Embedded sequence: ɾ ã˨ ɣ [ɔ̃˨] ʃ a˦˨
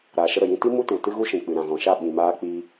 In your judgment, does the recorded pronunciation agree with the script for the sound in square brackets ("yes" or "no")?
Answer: yes